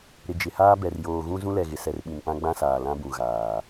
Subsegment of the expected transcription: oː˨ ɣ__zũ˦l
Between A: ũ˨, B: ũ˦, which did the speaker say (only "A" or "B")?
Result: B